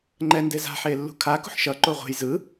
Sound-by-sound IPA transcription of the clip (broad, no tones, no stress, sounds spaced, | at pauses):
ŋ͡ǃ ɛ n d e z a̤ ħ e lː ṳ kʰ a k ṳ ħ ʃ ʌ ǃ o ʁʷ e̤ j z ɯ